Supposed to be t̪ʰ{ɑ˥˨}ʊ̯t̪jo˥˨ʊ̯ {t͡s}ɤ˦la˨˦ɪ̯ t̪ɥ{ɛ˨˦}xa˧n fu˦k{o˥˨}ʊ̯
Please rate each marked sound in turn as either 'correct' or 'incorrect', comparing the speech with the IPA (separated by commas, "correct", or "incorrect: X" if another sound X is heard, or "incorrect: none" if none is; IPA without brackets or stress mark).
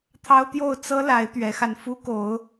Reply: incorrect: ɑ˦, correct, correct, incorrect: o˨˦